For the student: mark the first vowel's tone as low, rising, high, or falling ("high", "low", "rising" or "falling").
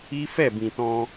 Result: high